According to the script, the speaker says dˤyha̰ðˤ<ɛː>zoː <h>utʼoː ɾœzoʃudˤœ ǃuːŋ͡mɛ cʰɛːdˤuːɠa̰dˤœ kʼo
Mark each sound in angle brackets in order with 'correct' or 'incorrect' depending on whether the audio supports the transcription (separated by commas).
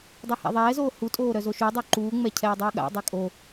correct, correct